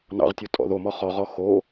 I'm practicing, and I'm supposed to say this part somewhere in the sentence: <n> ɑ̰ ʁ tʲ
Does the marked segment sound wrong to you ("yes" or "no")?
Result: no